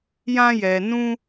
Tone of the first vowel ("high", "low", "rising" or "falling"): high